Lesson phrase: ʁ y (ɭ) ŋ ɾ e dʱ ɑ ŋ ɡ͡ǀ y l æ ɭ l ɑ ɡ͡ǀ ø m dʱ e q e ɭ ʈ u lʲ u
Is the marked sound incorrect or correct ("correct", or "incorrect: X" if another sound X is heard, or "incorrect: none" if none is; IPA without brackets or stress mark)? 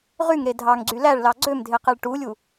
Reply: incorrect: none